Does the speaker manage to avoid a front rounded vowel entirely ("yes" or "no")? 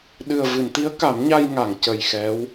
yes